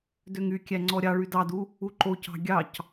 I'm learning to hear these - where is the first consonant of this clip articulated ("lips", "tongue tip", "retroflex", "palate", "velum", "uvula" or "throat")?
tongue tip